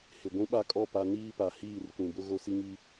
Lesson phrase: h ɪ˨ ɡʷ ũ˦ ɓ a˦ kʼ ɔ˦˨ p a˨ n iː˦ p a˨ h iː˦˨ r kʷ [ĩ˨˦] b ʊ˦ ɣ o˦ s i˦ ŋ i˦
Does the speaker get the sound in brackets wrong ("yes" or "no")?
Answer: yes